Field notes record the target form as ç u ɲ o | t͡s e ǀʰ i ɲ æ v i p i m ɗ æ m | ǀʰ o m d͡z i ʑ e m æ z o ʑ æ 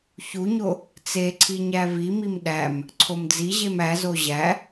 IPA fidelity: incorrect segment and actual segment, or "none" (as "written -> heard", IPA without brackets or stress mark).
p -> m